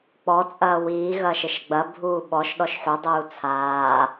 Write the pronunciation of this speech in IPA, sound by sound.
k͡p ɔ t͡sʼ ɐː w iː ɣ ɐː ʃ ɘ ʃ ɡ͡b ɐ bʱ uː ɓ ɔ ʃ ɗ ɔ ʃ ħ u dˤ uː t͡sʰ aː

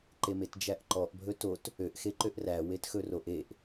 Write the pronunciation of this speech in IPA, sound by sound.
ǃ e m e t d͡ʒ æ ʔ ǃ ɔ ʔ bʱ ɵ t o t | ø ʔ x e ǃ ø ʔ r æ w e t x ɵ r o ʔ e ʔ

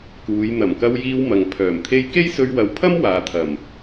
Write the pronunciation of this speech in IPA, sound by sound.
k uː˨˧ j n̪ ɐ˨˩ m k ɐ˧ w j iː˧ w m ɐ˨ ŋ pʰ œː˨˩ m t̪ʰ e˥ j k e˥ j s ɵ˧ ɥ w ɐ˨˥ w pʰ ɐ˥ m w aː˨ t̪ʰ ɐ˨˩ m

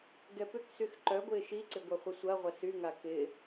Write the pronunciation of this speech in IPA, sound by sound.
ɡ ɛ p ʏ k s y x ǃ œ ɡʷ ɪː ʃ i ǀ ɪ ɡʷ ɐ χʷ ə sʷ ɐ ʁʷ ɐ s y ŋ a k ɪ

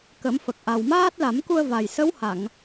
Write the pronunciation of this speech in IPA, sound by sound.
k ə˨˩˦ m f ə˨˩ k̚ ʔ a˨˩ w m aː˦˥ t̚ l a˨˩˦ m k u˧ ə̯ v a˨˩ j s ə˧˥ w h a˨˩˨ ŋ

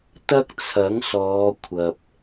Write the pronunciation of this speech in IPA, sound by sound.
t̪ ɐ˥ k̚ t͡sʰ ɐ˨˥ ŋ s ɔː˨˧ kʷʰ ɐ˨ p̚

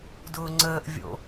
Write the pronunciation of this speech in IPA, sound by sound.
d ʊː ŋ͡ǀ əː ʔ vʲ o̰

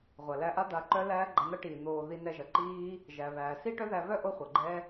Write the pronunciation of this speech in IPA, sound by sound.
ʁʷ ɐ˨ l æ˧ ʔ a˦ d̪ a˧ ǃ œ˦ l æː˦ ɡ͡ǃ a˧ n̪ ɐ˦ ʈ iː˨ n̪ oː˨ ð i˧ n ɛ˧ ʒ ɐ˨ ǃ iː˦ | ʒ æ˨ β æː˨ s i˦ ʈ œ˦ ð æ˧ β œ˦ ʔ o˦ χʷ ʌ˨ ɡ͡ǃ ɛ˦

